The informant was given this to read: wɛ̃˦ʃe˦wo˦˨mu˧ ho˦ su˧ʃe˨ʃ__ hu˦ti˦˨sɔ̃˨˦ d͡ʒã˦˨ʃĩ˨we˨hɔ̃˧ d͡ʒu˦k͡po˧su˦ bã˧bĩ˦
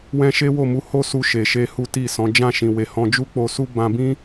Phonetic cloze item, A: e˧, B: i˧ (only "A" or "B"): A